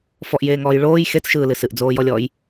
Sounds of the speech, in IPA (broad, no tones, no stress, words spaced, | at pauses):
fɔʔjeːŋɔːj ɭoːj xet͡sʃɯːlɨ sɨʔd͡zoːjɔlʲɔːj